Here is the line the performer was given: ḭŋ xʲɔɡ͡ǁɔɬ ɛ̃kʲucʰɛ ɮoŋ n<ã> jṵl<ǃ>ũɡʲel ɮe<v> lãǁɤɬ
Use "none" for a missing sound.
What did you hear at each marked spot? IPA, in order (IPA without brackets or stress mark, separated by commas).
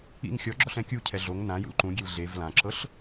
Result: ã, ǃ, v